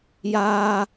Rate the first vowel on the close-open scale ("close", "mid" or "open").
open